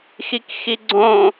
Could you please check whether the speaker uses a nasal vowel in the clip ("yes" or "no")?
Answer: yes